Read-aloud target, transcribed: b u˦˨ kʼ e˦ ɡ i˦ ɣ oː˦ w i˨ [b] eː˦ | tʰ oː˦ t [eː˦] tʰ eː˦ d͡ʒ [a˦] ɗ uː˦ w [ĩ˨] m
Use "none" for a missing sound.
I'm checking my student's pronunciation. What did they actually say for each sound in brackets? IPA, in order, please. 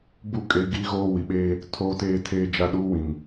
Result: ɓ, eː˦, a˦, ĩ˨

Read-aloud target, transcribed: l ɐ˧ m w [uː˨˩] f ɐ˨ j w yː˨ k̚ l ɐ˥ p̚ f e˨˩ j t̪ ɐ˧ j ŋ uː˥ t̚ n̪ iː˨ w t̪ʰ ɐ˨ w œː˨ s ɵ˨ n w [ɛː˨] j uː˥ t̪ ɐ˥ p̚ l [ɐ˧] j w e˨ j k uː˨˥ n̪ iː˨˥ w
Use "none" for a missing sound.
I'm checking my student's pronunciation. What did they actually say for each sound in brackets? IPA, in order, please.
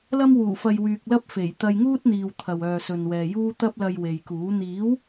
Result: uː˨˩, ɛː˨, ɐ˧

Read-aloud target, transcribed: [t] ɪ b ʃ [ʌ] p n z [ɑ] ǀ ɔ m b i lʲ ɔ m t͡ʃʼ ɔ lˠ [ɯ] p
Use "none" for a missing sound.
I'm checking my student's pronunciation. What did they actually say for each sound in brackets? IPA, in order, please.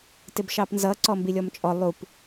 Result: t, ɑ, ʌ, u

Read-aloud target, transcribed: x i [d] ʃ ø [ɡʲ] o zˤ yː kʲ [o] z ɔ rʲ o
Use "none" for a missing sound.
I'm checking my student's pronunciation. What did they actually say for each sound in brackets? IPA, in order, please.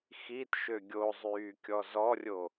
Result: t, ɡʲ, ɔ

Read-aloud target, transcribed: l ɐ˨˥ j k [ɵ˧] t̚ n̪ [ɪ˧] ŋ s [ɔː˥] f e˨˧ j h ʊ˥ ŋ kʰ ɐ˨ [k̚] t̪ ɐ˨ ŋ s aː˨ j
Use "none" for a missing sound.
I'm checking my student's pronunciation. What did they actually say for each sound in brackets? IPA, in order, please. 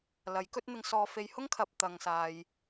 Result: ɵ˥, ɪ˧, ɔː˧, p̚

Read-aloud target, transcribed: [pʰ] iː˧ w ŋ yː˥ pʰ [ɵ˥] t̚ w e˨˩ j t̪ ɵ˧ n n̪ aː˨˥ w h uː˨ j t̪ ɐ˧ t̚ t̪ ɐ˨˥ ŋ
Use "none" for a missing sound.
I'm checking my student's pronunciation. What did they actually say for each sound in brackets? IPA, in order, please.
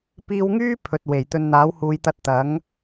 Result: p, ɵ˨

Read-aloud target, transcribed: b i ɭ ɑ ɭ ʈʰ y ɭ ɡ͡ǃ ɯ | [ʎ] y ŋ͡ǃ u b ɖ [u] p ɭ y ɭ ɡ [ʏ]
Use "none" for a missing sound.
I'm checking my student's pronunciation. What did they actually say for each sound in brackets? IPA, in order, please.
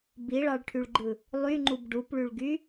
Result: lˠ, u, y

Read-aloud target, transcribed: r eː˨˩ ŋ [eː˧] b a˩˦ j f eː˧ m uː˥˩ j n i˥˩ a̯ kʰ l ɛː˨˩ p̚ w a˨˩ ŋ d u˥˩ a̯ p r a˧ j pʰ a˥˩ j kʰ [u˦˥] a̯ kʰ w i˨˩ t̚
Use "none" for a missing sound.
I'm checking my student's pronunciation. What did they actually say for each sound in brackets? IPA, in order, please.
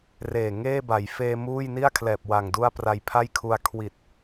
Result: eː˥˩, u˧

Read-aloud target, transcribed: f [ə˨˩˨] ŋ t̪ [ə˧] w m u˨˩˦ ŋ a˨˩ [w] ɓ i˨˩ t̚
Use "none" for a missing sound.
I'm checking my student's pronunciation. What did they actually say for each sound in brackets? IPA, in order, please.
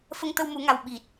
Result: ə˧, ə˧, w

